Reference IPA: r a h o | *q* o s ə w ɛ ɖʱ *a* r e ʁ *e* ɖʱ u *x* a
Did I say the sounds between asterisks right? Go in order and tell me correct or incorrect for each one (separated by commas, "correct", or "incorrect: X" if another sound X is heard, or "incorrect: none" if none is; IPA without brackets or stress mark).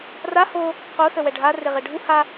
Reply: correct, correct, correct, incorrect: h